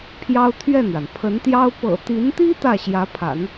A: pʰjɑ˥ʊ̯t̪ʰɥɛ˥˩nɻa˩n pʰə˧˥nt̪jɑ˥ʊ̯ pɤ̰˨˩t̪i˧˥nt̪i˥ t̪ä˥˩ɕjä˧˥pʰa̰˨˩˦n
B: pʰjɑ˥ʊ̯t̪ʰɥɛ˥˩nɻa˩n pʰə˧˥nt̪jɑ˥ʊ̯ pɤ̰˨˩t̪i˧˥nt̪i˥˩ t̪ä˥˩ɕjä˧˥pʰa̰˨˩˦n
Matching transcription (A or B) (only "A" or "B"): A